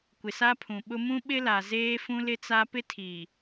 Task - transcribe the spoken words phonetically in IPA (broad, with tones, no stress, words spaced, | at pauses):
kʷɪ˨sa˦pʰũ˨ɓʊ˦ mũ˦ɓɪ˦la˨ zeː˦fũ˦lɪ˦t͡sa˦ pɪ˦tʰiː˨